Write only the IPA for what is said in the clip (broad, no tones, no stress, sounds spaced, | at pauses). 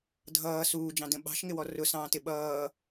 dʱ ʌː s uː d͡ʒ ɑ̃ d ə̃ ɓ ɑ̤ ʃ ŋ ɪ w ɔ r ʊ s ɑ̃ː t ɪ ɓ ʌː